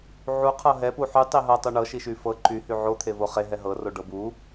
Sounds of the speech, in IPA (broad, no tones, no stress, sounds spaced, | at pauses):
ʕ u qʰ ɤ ɦ ɛ p u ħ y tˤ i ɦ ɤ tˤ u ɳ ɤ ʃ i ʃ y f ɤ ǃ y h y ʕ o t̪ʰ e v o χ e ɦ ɛ ɦ ɤ r o ɖ ɤ b u